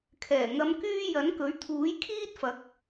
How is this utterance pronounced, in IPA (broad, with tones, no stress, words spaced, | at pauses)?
kʰɛː˨˩ŋɐ˨˧mkyː˧ jɐ˨˥nkɵ˨˥ɥ t̪ʰuː˨˥jkʰiː˥t̚fɐ˨˥k̚